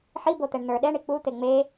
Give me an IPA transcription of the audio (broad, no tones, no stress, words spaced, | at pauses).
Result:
ħibot̪ɛɳ n̪ə˞ ɗɛɳi k͡put̪e ŋ͡me